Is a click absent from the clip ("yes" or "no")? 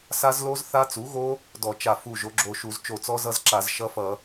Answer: no